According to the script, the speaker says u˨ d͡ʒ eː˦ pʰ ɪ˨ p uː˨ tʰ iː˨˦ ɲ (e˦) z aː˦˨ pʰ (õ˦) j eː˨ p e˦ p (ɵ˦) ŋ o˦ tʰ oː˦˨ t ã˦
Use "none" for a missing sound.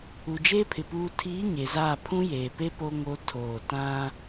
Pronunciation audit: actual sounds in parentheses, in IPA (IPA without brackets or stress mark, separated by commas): e˨, ũ˦, o˦